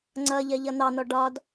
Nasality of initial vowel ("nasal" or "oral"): oral